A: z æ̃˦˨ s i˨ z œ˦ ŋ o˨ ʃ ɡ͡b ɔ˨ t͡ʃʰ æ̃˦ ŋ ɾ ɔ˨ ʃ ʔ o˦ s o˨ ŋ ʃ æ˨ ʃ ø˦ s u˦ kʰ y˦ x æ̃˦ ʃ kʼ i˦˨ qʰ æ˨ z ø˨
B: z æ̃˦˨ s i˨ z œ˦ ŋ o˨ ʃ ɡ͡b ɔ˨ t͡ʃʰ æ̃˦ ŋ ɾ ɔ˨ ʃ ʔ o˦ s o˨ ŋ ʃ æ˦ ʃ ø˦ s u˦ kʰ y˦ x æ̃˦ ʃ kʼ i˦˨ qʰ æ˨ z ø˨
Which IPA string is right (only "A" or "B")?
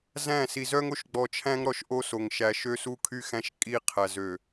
A